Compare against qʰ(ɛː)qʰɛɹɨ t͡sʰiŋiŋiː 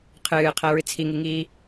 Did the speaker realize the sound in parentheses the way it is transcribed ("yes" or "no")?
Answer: no